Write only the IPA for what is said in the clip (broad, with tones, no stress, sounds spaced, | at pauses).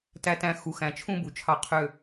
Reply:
t æ˧ t æ̃˧ x u˨ x æ̃˨ t͡ʃʰ ũ˧ b u˨ t͡ʃʰ ɑ˧ qʰ ø˧